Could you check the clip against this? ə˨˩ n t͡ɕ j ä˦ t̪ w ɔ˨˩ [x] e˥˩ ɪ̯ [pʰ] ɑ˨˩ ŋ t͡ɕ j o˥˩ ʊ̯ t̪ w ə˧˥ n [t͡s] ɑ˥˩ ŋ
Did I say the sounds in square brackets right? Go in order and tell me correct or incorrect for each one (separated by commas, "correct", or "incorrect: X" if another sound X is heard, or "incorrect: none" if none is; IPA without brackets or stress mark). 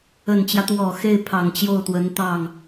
correct, correct, incorrect: t̪